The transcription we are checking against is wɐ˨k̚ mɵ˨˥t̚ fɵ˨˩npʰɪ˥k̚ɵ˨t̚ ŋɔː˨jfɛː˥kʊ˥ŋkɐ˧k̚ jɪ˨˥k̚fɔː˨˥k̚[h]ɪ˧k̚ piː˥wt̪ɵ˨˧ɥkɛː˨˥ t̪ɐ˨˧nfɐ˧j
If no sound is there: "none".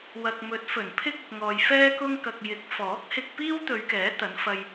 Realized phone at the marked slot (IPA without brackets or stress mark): h